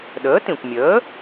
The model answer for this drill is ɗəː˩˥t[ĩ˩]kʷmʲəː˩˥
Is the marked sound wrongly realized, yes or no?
no